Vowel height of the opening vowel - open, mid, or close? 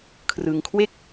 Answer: close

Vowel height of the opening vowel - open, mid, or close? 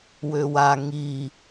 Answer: mid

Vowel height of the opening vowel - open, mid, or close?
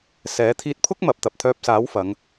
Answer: mid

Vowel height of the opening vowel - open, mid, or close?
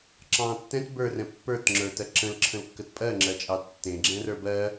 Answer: open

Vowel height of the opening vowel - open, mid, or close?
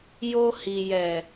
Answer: mid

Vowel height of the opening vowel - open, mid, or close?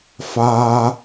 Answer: open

